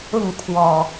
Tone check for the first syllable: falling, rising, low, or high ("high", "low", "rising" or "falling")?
falling